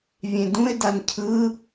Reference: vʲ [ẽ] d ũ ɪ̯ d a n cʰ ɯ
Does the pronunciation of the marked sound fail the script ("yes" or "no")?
no